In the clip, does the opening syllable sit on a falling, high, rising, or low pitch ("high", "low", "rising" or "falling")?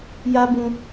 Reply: high